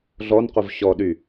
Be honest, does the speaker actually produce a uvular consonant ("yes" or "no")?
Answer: yes